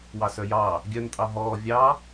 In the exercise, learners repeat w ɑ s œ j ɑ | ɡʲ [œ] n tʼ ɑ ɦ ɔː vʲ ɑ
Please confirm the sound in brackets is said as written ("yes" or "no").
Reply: yes